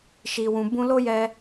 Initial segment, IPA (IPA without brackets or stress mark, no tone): ʃ